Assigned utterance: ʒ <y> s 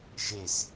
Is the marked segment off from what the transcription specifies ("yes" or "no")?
yes